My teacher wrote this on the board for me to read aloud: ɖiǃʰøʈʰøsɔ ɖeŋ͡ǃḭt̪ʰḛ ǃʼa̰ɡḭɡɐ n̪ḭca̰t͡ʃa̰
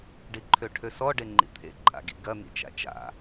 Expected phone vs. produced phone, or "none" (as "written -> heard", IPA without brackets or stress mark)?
c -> t͡ʃ